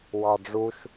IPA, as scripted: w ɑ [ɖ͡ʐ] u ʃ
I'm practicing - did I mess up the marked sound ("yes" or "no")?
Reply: no